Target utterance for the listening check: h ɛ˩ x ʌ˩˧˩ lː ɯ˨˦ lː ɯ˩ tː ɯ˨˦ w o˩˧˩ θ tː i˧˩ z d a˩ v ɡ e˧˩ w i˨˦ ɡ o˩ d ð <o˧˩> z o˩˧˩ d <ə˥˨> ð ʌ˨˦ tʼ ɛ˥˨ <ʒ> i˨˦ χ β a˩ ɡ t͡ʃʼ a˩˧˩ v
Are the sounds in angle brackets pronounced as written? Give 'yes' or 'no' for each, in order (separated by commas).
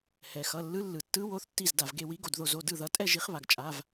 yes, no, yes